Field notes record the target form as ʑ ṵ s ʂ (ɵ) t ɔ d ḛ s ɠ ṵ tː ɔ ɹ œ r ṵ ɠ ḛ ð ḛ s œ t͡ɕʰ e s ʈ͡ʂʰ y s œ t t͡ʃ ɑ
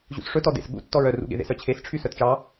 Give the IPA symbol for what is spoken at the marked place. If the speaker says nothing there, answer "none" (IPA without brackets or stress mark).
ɵ